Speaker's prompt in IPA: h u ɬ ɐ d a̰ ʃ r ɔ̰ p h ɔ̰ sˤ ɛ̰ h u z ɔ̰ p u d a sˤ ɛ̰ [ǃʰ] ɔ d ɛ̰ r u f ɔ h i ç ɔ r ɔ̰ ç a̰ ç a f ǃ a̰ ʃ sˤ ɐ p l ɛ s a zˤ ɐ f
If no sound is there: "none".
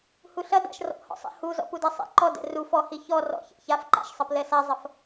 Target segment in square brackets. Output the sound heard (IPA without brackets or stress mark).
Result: ǃ